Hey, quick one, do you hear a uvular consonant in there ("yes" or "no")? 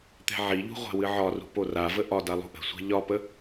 yes